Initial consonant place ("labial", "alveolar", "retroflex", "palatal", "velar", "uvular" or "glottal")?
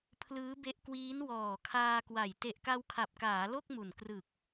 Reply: labial